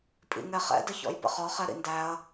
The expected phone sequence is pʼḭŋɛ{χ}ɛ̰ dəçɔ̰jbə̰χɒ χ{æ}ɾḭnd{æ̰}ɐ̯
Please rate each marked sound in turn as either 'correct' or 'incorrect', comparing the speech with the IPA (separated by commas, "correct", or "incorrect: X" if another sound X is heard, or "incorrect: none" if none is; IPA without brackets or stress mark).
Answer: correct, incorrect: ɛ, incorrect: æ